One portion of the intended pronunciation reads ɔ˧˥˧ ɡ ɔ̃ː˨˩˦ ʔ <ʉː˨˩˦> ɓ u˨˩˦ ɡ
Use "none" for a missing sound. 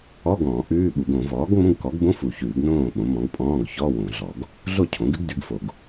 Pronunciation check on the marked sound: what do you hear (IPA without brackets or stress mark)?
ʉː˧˥˧